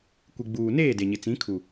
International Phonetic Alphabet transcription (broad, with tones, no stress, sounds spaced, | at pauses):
kʷ i˨ ɡ͡b uː˨ n eː˦˨ d e˨ ɲ ɪ˨ t͡s ĩ˨˦ kʰ u˨